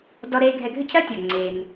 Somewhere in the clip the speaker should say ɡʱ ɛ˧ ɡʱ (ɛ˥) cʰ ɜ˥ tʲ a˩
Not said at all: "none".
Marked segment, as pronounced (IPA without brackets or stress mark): ʏ˥